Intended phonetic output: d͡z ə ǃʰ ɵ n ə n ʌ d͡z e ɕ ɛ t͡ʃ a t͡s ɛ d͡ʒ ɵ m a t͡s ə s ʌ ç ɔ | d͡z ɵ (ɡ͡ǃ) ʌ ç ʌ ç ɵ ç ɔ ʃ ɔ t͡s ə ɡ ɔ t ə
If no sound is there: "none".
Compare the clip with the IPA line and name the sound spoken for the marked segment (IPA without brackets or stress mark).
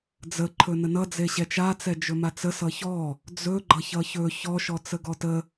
ɡ͡ǃ